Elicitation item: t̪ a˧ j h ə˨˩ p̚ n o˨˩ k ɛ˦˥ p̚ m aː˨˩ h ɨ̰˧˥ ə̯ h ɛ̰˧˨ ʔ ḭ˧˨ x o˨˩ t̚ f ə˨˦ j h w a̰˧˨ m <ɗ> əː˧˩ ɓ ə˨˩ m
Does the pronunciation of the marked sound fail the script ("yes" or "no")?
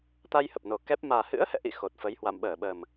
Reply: yes